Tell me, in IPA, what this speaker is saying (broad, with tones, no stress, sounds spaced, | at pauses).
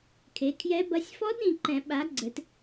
kʰ e˨˦ kʰ j ɛ˦˥ b ɐ˦˥ sʲ f ɔ˦˥ d ɾ ĩ˨ ǃ ɛ̃˨˩˦ ɓ a˨˦ ɡ͡ǀ ɘ˨˦ t